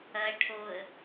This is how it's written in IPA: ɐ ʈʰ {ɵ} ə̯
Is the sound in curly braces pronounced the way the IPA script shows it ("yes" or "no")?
no